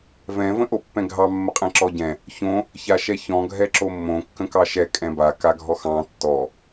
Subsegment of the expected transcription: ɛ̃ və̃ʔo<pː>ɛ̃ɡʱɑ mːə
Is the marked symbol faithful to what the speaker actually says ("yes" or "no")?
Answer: yes